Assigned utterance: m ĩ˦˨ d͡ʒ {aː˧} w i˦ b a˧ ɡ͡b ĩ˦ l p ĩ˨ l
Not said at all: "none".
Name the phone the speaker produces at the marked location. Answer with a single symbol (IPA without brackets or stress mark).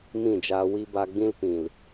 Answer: aː˧